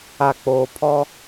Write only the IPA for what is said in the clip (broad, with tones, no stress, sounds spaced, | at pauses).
a˨ k͡p oː˨ pʰ ɔ˦